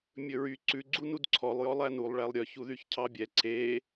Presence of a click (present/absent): present